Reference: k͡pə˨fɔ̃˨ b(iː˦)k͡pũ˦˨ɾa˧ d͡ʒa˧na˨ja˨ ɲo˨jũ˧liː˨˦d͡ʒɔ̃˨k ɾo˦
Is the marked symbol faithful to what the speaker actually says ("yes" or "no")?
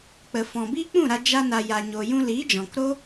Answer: yes